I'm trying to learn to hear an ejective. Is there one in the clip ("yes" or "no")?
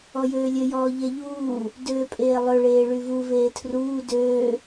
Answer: yes